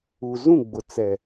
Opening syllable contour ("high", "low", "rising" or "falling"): low